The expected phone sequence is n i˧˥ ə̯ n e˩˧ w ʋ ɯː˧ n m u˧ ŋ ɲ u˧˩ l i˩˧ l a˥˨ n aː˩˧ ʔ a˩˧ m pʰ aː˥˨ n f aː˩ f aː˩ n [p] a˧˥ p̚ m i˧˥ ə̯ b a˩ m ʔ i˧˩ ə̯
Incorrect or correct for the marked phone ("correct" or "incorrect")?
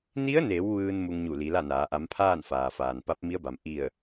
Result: correct